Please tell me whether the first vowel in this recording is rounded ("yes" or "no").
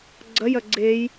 no